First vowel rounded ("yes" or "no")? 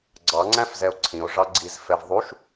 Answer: no